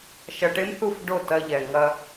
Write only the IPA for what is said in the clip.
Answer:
ʃɐ˧ʈe˦mθu˦˨f ɖo˦˨tɐ˧ʎɛ˨ ŋɐ˧

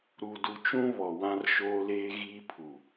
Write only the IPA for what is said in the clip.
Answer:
ɾu˨du˨t͡ʃũ˦ βɔ˨wã˦rʃoː˦leː˦ ɣiː˦pʰu˨

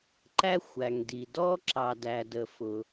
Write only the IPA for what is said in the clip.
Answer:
ǃæ˧xʷæ˩ŋdi˩dɔ˧ ǁɑ˩dæ˩ də˩fʊ˩

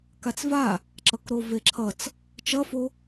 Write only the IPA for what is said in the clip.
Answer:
kat͡sva | ǁʌkɾoveǁʰʌt͡s | t͡ʃʌfo

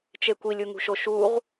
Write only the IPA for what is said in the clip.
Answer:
t͡ʃekʷilʲ uŋṳʃoʃuʁ

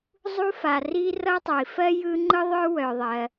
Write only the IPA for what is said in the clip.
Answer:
zˤu˥fa˩ ri˥ rʌ˥tˤœ˩i̯ fɜ˥ jɯ˥ ŋ͡ǃɯ˥ðˤœ˥ wœ˩ðˤɜ˩

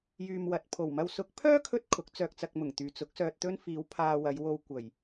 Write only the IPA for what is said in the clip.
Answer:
jyː˧mwɐ˨t̚ pʰo˨˩wmɐ˧w sʊ˨˥k̚pʰœː˥ kʰɵ˥t̚ kʰʊ˨˥k̚t͡sœː˧k̚t͡sɐ˧k̚ mʊ˨˩ŋt̪yː˨ t͡sʊ˨˥k̚sœː˧t̚t̪ɵ˥n fiː˨˧w pʰaː˧wɐ˨˧jwo˧w kʷɐ˨˩j

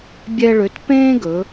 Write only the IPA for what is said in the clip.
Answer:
bʲɛ˧ɭø˩˧t pẽː˥ɡɵ˩˧

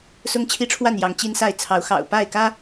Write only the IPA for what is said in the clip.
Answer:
sʊ˦ŋt͡ɕʰi˦ʈ͡ʂʰwa˥˨n jɑ˨˦ŋt͡ɕi˦nsa˥˨ɪ̯ t͡sʰɑ˨˦ʊ̯ xɑ̰˨˩ʊ̯pa˥˨ɪ̯kä˦

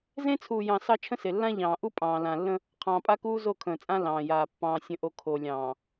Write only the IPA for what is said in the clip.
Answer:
zẽ˦t͡sʰuː˨jɑ̃˨ sɑ˦t͡ʃʰə̃˦se˨ lːã˦ʎɑ̃ː˨ʔu˦ pʼɑ̃ː˨ lã˨lːə̃˦ | qʰɑ̃ː˨pʼa˦kuː˦ zo˦˨kʰə̃ː˨t͡sʼã˦ lɑ̃ː˨jaː˨ pːɑ̃ː˨ sʲə̃˨ʔo˨ kʰo˨lʲɑ̃ː˨

